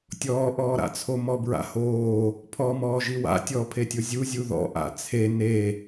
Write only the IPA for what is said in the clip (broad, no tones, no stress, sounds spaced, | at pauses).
tʲ ɔː ʔ ɔː ɾ a̰ t͡sʰ o m ɔ b ɹ a̰ h oː | pʰ ɔ m ɔː ʒ i w a̰ tʲ ɔ pʰ e tʲ o zʲ u zʲ u ð ɔ̰ ʔ a̰ t͡sʰ e n e